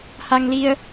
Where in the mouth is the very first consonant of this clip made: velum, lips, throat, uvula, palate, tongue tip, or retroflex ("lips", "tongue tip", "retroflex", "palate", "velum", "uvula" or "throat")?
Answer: throat